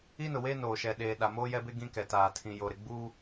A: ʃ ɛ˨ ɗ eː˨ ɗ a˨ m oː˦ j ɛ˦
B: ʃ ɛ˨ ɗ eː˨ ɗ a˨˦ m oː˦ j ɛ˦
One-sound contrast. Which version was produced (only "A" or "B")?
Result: A